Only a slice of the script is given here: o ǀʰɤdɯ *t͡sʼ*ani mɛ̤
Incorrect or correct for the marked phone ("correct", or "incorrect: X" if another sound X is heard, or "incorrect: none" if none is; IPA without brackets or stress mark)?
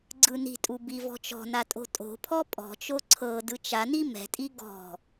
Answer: incorrect: t͡ʃ